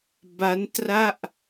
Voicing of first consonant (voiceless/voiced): voiced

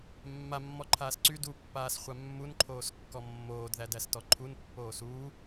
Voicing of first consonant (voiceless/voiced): voiced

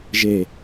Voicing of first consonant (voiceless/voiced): voiced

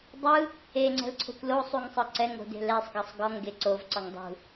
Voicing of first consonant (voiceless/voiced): voiced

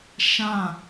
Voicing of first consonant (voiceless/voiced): voiceless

